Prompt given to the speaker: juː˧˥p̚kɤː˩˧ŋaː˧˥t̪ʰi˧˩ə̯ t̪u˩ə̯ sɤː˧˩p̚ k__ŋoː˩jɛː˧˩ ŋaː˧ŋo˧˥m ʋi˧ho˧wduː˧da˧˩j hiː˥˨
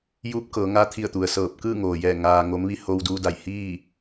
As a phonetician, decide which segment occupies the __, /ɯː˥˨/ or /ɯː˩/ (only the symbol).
ɯː˥˨